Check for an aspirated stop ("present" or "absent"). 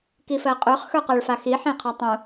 present